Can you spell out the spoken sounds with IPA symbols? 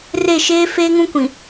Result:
r e˦˨ ʃ eː˦ f eː˦ ŋ ũ˦ kʷ ĩ˨

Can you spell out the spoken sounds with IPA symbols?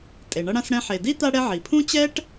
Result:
tʼ e˩ ɳ ʌ˦ ɽ ã˦ s ɽ ɛ̃˦ ħ e˩ d i˥ t̪ a˦ ɽ ɛ˦ ʕ i˩ pʰ ũ˥ t͡ɕ ɛ˥ ʈ

